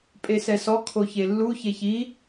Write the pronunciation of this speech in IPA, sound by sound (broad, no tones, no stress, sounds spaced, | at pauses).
pʼ e s ɛ s ɔ kʰ o ç e lː u ç e ç i